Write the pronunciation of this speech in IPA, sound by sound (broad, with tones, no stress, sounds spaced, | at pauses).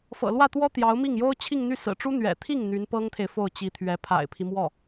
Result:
f ɤ̰˨˩ l w ä˥˩ t̪ w ɔ˥ t̪ j ɑ˧˥ ʊ̯ m i˥˩ ŋ j o˥ ʊ̯ t͡ɕʰ i˥˧ ŋ n̪ y˥˩ s ɹ̩˨˩ ʈ͡ʂ u˥ n̪ ɥ ɛ̰˨˩ t̪ʰ i˥˩ ŋ n̪ y˧˥ n p ɤ˥ ŋ t̪ʰ e˨ ɪ̯ f o˥˩ ʊ̯ t͡ɕ i˧˥ t̪ʰ ɥ ɛ˧˥ pʰ a̰˨˩ ɪ̯ pʰ i˦ m w ɔ˥˩